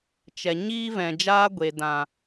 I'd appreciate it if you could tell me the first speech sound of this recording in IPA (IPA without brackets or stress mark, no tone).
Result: t͡ʃ